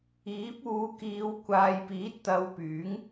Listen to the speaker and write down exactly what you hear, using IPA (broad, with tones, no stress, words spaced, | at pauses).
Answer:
iː˨˥p̚uː˨˧kiː˨˧w kʷaː˨jpiː˨˥t̚t̪ɐ˨˧w pyː˨˥ŋ